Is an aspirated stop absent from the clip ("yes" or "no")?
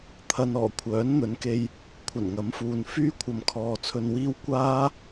no